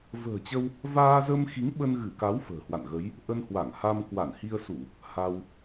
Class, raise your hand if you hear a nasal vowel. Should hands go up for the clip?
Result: no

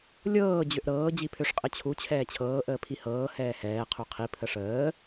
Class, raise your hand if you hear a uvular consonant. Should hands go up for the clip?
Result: yes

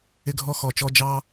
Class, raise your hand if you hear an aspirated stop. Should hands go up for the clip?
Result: no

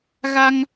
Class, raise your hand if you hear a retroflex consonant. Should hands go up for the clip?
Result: no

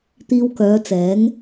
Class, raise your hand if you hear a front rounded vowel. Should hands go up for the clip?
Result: yes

